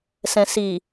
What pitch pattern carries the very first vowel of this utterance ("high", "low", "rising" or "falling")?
low